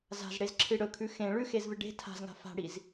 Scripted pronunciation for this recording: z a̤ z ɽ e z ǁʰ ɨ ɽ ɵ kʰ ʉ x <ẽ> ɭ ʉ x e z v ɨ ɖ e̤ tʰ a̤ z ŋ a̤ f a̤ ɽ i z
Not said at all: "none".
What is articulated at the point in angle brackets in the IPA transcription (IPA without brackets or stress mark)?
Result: ẽ